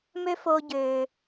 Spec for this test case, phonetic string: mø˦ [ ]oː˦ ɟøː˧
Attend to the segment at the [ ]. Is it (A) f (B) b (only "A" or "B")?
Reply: A